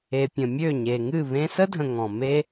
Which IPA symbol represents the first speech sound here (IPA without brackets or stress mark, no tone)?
e